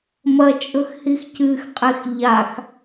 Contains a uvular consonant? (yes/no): yes